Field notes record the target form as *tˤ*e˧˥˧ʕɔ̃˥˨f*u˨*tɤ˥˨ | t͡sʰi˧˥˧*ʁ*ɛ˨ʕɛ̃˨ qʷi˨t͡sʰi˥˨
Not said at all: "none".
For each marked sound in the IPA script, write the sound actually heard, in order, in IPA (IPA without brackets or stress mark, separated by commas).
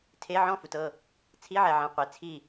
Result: tʰ, u˨, ʕ